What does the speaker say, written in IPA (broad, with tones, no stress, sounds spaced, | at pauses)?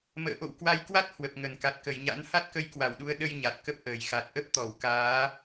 m ə̰ː˧˨ ʔ o̰˧˨ w k w a˨˦ j k w a˦˥ t̚ h w ə˨˩ p̚ ŋ ə˧˩ n k a˨˩ t̚ k ə˧˩ j ɲ a̰˧˥ n h a˦˥ t̚ k ə˧ j k w a˧˩ w ɗ u˨˦ ə̯ ɗ ə˧ j ɲ a˨˩ t̚ k ə˦˥ p̚ ʔ əː˧˩ j x a˨˩ t̚ ʔ ə˦˥ p̚ t̪ ɔ˧˩ w k aː˨˦